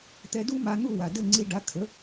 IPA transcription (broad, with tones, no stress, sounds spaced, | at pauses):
t̪ ɛ˧ d u˥ m a˧ n̪ u˥˩ w a˩ d ɘ˥˩ ŋ͡ǀ i˧ ɖ a˩˥ kʰ ə˩˥